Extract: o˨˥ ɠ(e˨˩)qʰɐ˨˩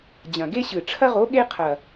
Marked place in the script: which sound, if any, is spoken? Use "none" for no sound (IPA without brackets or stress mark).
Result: e˥